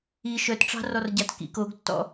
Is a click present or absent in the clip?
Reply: absent